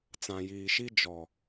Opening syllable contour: low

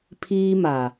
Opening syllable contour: high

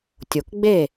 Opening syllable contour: low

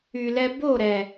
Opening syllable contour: low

